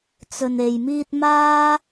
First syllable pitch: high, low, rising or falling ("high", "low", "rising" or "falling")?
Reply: low